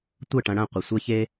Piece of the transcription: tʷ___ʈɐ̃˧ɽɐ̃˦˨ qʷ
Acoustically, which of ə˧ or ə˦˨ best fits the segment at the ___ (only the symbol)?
ə˦˨